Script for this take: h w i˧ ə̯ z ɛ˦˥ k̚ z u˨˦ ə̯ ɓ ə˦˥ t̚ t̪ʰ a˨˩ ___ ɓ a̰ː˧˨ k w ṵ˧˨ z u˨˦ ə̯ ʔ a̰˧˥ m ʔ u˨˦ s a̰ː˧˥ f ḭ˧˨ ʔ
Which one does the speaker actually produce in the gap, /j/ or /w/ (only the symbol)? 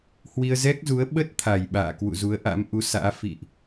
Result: j